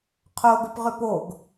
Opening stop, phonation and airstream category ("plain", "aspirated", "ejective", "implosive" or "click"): aspirated